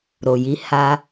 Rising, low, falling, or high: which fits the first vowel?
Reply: low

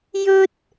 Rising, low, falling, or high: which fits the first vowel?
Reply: high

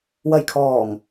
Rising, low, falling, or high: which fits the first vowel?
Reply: low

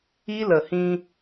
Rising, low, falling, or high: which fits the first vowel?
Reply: high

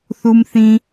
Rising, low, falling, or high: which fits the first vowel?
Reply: high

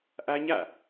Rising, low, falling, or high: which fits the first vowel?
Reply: high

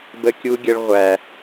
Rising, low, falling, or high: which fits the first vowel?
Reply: high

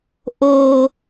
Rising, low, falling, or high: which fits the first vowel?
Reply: low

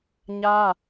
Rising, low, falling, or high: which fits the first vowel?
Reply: high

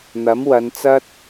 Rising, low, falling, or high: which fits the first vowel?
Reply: rising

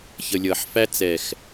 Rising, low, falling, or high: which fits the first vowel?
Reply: low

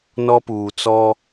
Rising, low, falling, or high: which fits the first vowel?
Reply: high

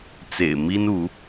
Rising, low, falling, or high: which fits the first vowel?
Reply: low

